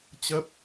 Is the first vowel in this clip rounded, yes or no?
no